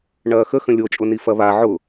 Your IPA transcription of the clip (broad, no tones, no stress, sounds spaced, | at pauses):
ɳ ɐː x ə x ə̃ lʲ o t͡ʃʼ ʊ n i f ɐ β a ʕ ʊ